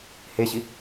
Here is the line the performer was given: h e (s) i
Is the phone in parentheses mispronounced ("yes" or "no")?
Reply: yes